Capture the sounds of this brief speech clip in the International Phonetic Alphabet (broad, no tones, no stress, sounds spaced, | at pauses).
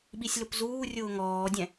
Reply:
ɓ i sʲ l ʊ p z uː rʲ ʊː ŋ ɔː dʲ ɛ̃